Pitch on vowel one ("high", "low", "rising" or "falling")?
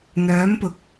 rising